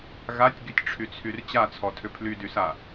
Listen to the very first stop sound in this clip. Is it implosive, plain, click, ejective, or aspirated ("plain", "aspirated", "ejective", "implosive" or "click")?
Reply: plain